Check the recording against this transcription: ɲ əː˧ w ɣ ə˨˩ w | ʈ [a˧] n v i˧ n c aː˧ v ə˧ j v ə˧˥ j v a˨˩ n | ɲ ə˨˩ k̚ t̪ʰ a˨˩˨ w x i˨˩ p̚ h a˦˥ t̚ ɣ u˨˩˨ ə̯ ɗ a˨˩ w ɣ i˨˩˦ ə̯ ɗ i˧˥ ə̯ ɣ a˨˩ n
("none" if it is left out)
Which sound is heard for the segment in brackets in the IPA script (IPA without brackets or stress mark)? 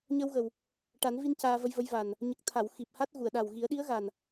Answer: a˨˩˦